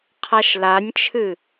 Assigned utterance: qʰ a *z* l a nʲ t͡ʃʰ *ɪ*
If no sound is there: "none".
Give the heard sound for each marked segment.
ʃ, ɨ

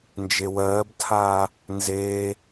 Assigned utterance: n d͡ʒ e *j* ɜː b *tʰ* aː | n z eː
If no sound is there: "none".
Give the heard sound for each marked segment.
w, tʰ

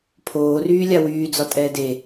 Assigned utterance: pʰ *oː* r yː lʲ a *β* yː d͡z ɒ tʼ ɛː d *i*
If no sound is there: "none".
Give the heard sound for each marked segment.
oː, w, e

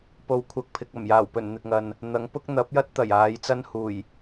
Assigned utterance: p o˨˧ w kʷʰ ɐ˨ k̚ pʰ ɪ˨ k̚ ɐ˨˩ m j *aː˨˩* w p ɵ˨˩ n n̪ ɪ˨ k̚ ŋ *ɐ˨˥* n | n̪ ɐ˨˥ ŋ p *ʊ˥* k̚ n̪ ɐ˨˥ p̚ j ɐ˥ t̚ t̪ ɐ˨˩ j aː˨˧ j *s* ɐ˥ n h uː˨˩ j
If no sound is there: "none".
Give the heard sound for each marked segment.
aː˨˩, ɐ˨, ʊ˥, t͡s

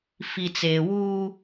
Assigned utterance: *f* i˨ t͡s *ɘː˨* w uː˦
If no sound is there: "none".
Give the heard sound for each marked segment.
f, eː˨

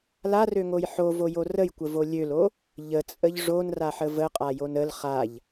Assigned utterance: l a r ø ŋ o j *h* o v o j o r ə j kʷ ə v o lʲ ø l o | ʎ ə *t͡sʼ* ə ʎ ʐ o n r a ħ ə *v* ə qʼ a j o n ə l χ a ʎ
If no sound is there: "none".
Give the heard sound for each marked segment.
ħ, t͡sʼ, v

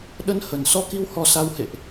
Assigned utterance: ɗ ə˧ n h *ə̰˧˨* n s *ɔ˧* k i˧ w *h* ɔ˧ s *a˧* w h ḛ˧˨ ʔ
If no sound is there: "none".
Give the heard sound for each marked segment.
ə˨˩, ɔ˧, h, a˧

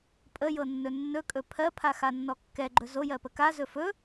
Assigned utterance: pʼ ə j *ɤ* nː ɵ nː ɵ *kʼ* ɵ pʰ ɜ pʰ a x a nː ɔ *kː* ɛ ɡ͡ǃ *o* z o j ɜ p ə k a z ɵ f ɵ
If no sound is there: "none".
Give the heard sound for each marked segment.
ɤ, kʼ, kː, ɵ

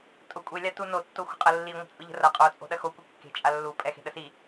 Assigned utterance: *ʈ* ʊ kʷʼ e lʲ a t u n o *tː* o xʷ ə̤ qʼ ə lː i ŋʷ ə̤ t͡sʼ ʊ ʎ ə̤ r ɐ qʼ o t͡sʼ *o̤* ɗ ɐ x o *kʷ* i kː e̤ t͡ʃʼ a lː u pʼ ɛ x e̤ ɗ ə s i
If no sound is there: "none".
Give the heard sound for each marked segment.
tʼ, tː, o̤, kʷ

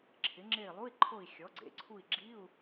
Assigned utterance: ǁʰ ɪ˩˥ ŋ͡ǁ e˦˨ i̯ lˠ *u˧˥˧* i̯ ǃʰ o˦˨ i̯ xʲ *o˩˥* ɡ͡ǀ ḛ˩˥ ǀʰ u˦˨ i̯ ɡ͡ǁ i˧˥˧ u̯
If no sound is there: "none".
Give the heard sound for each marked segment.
u˧˥˧, ɔ˩˥

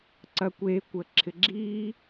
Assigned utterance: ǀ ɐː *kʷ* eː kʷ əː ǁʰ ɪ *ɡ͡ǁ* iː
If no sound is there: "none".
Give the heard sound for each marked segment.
kʷ, ɡ͡ǁ

